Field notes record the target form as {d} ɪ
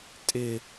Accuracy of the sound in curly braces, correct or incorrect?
incorrect